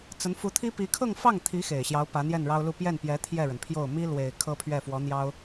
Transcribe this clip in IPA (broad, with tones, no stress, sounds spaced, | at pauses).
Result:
t͡s ə˧˥ n f u˧˥ t̪ʰ i˥ p i˧˥ kʰ ɤ˥˧ ŋ f ɑ˥˩ ŋ t̪ʰ i˧˥ x e˨˩ ɪ̯ ɕ j ɑ˧˥ ʊ̯ p ä˧˥ n̪ j ɛ˥˩ n ɻ ɑ˥ ʊ̯ l u˥˧ p j ɛ˥˩ n p j ɛ˧˥ t̪ʰ j ɛ˥˩ ɻ ə˩ n pʰ j o˥˩ ʊ̯ m i˥ l w e˨˩ ɪ̯ kʰ ɤ˥ pʰ ɥ ɛ˥˩ f w ɔ˧˥ n̪ j ɑ˥ ʊ̯